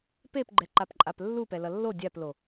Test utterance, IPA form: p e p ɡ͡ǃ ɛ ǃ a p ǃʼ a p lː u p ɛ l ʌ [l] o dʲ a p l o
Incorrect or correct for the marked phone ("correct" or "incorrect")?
incorrect